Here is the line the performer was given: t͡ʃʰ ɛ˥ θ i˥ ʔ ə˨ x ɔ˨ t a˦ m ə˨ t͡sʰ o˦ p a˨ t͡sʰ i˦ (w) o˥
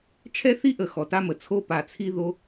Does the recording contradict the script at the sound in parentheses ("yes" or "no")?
yes